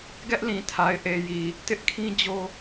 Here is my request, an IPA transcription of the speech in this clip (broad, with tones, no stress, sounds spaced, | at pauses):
ɡ ɛ˦ ʔ l ĩ˨ tʰ a˨ ɪ̯ ʔ e˨ j i˨ | t ɪ˦ ʔ kʰ ĩ˦ d͡ʑ o˦